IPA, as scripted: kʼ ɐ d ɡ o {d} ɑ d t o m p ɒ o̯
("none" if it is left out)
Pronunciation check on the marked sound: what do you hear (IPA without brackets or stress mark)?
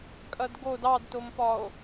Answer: d